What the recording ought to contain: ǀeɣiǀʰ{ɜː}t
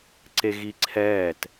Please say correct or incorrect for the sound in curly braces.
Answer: incorrect